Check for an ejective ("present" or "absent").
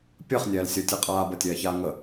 present